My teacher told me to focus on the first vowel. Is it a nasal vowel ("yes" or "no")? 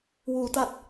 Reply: no